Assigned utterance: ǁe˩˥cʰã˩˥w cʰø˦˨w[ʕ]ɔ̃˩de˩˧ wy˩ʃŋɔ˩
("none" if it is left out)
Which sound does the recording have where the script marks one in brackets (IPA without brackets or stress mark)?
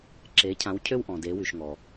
ʔ